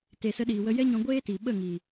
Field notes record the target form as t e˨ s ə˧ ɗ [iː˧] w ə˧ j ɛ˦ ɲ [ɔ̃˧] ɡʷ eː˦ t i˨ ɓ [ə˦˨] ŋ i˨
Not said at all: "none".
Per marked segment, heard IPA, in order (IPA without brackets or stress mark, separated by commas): iː˨, ɔ̃˧, ə˦˨